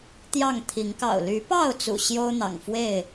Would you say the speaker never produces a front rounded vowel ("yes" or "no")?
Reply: no